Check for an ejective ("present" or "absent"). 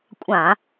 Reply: present